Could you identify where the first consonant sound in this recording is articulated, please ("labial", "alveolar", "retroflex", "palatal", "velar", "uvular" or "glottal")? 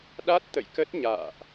alveolar